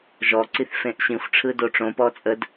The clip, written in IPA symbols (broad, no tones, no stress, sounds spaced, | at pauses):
ʒ ɔ ǀ i θ f ẽ ʔ ɕ ĩ xʷ ʈ͡ʂʰ ɯ d o ʈ͡ʂ õ p ɔ t͡sʼ ə d